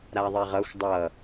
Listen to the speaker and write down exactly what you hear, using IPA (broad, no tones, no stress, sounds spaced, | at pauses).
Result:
ɾ a ðˤ e ʁ ʌ xʷ dˤ ʌ